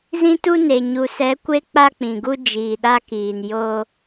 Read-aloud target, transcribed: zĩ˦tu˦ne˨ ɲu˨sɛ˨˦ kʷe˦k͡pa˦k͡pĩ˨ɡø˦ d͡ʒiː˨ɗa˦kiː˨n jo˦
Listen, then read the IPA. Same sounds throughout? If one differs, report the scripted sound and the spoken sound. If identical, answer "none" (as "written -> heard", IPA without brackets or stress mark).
ø˦ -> u˦